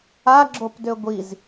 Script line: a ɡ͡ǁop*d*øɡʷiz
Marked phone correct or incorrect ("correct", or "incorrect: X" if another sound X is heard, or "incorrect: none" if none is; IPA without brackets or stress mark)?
correct